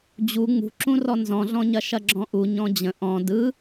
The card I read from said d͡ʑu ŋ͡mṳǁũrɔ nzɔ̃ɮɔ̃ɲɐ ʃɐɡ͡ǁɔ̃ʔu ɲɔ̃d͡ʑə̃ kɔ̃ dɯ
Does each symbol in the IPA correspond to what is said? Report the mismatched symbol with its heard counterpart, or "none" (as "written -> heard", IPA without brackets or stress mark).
k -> ʔ